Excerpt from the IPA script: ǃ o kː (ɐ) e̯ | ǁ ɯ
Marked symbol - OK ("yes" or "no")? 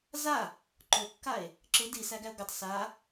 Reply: no